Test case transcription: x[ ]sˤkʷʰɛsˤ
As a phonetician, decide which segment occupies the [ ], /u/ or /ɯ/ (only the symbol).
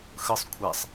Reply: ɯ